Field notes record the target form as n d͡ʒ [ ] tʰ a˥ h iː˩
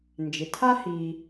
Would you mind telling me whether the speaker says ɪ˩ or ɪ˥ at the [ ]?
ɪ˩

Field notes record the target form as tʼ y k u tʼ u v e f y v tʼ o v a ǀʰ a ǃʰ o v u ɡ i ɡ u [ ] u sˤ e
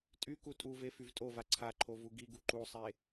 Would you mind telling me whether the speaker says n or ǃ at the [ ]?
ǃ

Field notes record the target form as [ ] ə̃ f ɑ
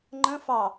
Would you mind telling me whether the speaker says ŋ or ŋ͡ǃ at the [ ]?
ŋ͡ǃ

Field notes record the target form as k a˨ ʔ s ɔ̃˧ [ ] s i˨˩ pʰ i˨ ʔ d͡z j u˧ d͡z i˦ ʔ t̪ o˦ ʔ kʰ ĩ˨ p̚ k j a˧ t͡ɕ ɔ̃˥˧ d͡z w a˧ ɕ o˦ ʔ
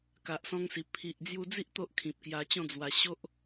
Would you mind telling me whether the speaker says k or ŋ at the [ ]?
ŋ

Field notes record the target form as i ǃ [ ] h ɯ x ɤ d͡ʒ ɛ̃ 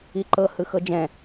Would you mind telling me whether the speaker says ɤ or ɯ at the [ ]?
ɤ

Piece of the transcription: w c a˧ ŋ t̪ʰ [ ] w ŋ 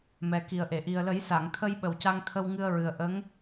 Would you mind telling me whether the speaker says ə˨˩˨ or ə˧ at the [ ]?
ə˧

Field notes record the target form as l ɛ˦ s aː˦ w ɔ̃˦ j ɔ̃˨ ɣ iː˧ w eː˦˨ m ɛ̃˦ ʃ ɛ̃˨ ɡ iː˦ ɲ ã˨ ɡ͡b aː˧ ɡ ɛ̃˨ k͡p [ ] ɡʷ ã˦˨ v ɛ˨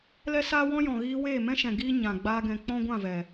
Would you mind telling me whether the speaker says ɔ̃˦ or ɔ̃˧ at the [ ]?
ɔ̃˦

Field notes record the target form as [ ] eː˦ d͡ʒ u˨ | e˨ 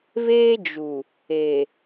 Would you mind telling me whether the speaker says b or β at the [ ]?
β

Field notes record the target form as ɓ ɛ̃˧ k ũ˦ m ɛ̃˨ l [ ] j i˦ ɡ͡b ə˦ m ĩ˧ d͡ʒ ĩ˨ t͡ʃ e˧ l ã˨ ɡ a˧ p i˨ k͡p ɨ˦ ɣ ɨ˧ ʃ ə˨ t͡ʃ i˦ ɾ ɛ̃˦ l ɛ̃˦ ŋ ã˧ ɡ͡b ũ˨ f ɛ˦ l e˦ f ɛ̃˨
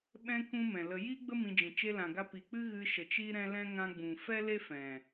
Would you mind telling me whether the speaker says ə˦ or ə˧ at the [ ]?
ə˧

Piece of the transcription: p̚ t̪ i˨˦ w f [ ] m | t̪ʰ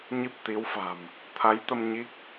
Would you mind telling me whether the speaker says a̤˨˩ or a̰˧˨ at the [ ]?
a̤˨˩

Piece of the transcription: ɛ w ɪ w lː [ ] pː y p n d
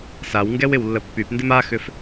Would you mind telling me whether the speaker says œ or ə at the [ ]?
ə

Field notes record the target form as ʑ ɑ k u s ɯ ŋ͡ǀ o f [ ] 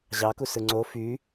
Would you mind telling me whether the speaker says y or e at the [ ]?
y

